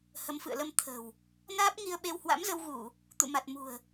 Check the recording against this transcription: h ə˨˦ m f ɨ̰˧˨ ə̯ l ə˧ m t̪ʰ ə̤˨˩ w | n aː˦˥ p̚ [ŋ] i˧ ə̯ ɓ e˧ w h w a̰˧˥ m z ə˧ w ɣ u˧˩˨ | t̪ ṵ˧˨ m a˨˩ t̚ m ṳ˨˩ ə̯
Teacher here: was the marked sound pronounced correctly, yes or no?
yes